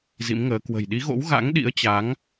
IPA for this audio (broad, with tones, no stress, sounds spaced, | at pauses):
z ḭ˧˥ m ŋ əː˨˦ k w ə̤˨˩ j ɗ i˨˦ ɣ o̰˧˥ w ɣ a̰˧˥ ŋ ɗ ḭ˧˥ ə̯ t͡ɕ a˨˦ ŋ